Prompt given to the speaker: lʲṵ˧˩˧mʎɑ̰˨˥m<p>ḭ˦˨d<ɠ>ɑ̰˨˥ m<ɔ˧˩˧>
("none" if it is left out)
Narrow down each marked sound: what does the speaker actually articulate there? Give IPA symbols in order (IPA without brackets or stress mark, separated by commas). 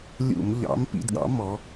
p, ɠ, ɔ˨˥